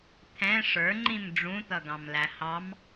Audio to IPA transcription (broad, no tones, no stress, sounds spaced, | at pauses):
t̪ʰ ɛ̃ ʂ ə˞ ŋ͡ǃ ĩ m ɖ͡ʐ ũ t̪ ʌ ɡ ɑ̃ m l æ h ɑ m